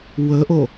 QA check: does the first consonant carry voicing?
yes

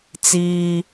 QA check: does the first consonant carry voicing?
no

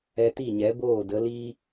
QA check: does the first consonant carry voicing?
no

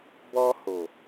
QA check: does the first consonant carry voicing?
yes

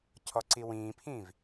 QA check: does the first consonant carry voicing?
no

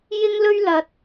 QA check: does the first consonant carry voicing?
yes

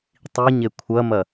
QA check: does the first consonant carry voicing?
no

